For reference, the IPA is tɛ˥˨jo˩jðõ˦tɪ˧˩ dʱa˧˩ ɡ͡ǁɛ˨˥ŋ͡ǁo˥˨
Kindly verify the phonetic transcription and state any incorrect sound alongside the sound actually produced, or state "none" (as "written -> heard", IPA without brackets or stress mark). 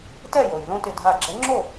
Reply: none